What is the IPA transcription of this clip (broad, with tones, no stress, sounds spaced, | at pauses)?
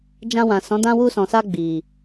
d͡ʒ ã˧ w ã˨ s ɔ̃˨˦ d ã˧ w u˧ s ɔ̃˨ s a˧ ɡ͡b i˨